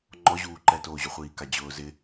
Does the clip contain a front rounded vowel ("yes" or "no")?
no